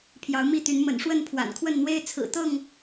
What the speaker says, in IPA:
pʰ j ɑ˨˦ ʊ̯ m i˥˨ t̪ y˨˦ n m ə̰˨˩ n ʂ w ə˥˨ n pʰ w a̰˨˩ n kʰ w ə˥˨ n n̪ w e˦ ɪ̯ t͡sʰ ɹ̩˨˩ t̪ ɤ˥˨ ŋ

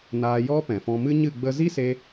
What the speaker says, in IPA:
n aː˧ j ɔ˦ p ɛ̃˨ f ɔ̃˧ m ɨ˦ ɲ ɨ˦˨ ɡ͡b ə˧ z i˦ s e˧

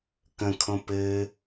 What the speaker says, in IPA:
k ə̃ kʰ õ p ɘ

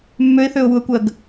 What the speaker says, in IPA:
mː ø ɪ̯ θ ø ʊ̯ w u ə̯ kʷ ɜ ɡ

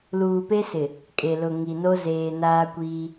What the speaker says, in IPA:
l uː˨ p e˦ s ɪ˨ | kʼ e˨ l ʊ˨ ŋ i˨ n o˦ z eː˨ n aː˦ kʷ iː˦

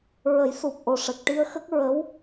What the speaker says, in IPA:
ɹ ə˨˩˦ j s u˨˩ p̚ ʔ o˨˩ ʂ ə˨˩ k̚ ʈ i˧ ə̯ x ə˦˥ k̚ ɹ ə˧˥ w

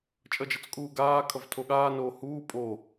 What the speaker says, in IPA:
t͡ʃʼ ʌ d͡ʒ ʌ t͡s kʼ uː ɡ aː kʰ ʌ v tʰ o ɠ aː n oː h uː pʼ o

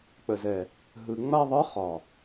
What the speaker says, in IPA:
k͡p ə˨ z ɛ˨ | ɦ ɯ˨ ŋ͡m a˧ ðˤ ɯ˨˦ χ ɒ˨

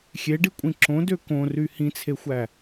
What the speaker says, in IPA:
xʲ e ɖ i kʷʼ ĩ ǁ õ d ø k õ r y h ĩ t͡sʰ e xʷ æ

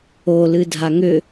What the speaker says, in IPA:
o l ɨ dʱ a ŋ ʏ

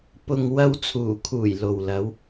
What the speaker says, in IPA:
p ʊ˨ ŋ w ɐ˧ w t͡sʰ uː˨˩ kʰ uː˨˩ j l o˨ w l ɐ˨˧ w

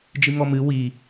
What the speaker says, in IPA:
d͡ʒ ɨ ŋ ɔ m ɨ w i

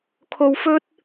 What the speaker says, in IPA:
kʰ o˧ w f ɵ˥ t̚

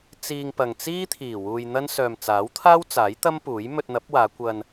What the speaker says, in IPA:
t͡s iː˧ ŋ p ɐ˨ ŋ t͡s iː˥ t̪ʰ iː˨˩ w uː˧ j n̪ ɐ˥ n s œː˨ m t͡s aː˨˥ w t̪ʰ aː˥ w t͡s aː˨˥ j t̪ ɐ˥ m p uː˨˥ j m ɵ˧ t̚ n̪ ɐ˨˥ p̚ w aː˨˧ kʷ ɐ˧ n

